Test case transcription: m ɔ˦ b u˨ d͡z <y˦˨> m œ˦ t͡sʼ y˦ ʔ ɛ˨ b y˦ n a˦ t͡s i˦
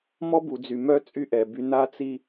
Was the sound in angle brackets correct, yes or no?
no